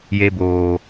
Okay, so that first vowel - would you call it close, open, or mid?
mid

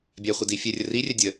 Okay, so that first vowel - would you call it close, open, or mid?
open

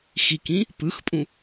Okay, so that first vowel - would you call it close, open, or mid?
close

